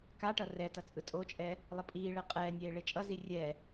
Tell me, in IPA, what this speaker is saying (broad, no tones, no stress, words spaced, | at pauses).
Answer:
kaʈʌ rɛtʌ t͡sʼɯtʼot͡ʃʼɛː | lˠʌpʼiːɭɛ qʼɛːnʲeː ɭet͡ʃʼʌzi rʲɛː